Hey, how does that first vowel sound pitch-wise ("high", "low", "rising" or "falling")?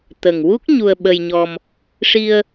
low